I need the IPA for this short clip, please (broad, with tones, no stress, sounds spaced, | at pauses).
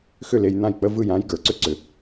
x ʏ˥˩ l e˧ j n̪ ã˥˩ j k͡p ə˥ v ɯ˥˩ j ã˥ j ɡ ə˞˩ ǀ ʏ˥ ǀ ʏ˩